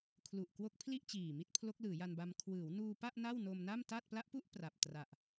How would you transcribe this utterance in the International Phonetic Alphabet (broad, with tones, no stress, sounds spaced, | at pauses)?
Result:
kʰ l u˨˩ ʔ k w o˦˥ k̚ pʰ l i˥˩ ʔ t͡ɕ iː˨˩ m i˥˩ t̚ pʰ l o˦˥ k̚ l ɯː˩˦ j a˧ n b a˧ m kʰ w ɯː˩˦ w n uː˧ p a˥˩ ʔ n a˥˩ w n o˧ m n a˥˩ m t a˥˩ t̚ p l a˦˥ ʔ p u˥˩ ʔ p r a˨˩ p̚ t r a˨˩ ʔ